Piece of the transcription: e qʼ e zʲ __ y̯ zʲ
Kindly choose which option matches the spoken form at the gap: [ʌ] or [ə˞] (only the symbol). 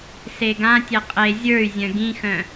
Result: ə˞